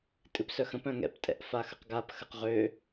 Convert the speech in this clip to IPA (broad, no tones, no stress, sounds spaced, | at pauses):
tʼ ɨ p s œ x ə̃ p œ̃ ŋ ɛ̰ p tʼ ɛ̰ ʔ f a x ə q ɡ a p x ə q ʁ ø